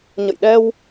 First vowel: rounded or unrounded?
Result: unrounded